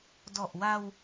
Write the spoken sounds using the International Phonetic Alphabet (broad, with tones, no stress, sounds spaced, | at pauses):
d ɔ˨˩ ʔ w a˧ w